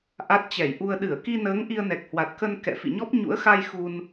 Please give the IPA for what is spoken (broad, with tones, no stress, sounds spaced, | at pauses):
ʔ a˦˥ t̚ t͡ɕ ɛ˧˩ j ʔ u˧ ə̯ ɗ ɨ˧˩ ə̯ k i˧ n əː˨˦ ŋ ʔ i˧ ə̯ n ɛ˨˩ k̚ h w a˨˩ t̚ k ə˧ n k ɛ̰˧˨ f ḭ˧˨ ɲ ɔ˦˥ p̚ ɲ ṵ˧˥ ə̯ x a˧ j x u˧ n